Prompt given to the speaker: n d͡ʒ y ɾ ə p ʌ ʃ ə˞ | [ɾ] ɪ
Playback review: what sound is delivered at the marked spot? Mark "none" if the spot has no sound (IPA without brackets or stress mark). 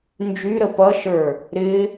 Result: ɾ